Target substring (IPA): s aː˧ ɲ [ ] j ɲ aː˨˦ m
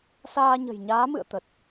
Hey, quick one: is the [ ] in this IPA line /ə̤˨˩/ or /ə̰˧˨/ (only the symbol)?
ə̤˨˩